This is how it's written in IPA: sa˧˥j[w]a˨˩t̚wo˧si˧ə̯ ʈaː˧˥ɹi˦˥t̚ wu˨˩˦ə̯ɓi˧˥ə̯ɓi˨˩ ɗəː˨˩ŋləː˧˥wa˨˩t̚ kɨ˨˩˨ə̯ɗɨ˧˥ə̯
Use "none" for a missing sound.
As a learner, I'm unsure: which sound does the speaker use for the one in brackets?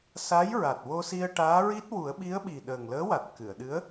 ɹ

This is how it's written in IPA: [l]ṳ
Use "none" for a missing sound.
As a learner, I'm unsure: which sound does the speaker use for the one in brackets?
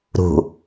ɾ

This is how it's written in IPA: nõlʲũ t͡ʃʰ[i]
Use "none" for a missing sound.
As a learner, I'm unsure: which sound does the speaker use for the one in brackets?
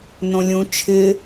ɪ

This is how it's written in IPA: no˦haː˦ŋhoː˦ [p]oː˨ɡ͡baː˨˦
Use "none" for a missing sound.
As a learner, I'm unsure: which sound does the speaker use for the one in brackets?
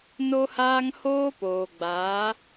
p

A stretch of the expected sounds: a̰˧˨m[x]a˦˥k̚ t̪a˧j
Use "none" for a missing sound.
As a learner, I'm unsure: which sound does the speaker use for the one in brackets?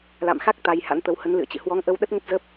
x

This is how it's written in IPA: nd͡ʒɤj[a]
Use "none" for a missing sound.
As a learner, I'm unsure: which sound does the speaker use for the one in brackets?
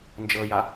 a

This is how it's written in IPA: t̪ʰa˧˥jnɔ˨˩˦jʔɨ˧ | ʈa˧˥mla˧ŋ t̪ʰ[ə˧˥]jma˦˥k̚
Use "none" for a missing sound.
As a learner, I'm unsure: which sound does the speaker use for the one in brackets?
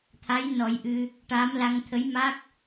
ə˧˥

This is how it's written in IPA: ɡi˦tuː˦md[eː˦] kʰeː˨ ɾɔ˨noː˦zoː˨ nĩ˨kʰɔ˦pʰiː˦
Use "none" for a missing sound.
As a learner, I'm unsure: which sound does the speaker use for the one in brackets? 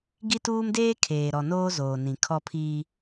eː˦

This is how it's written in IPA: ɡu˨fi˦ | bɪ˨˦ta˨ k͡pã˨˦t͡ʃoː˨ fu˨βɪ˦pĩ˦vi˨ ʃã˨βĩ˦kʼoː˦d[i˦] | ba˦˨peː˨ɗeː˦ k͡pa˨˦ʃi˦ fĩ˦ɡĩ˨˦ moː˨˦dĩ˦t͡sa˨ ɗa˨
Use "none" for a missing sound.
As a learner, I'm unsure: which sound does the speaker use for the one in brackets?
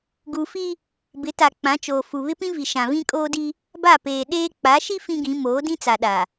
i˦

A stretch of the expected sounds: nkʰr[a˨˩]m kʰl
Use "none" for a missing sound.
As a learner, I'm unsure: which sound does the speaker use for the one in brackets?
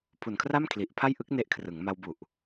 a˥˩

